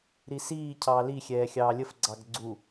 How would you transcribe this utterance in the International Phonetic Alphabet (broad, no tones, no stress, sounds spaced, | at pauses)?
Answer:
ɾ i s iː cʰ ɑː l i xʲ ɛː xʲ ɑː lʲ ə f ɡ͡ǀ ɑ ɡ ɡ͡ǀ u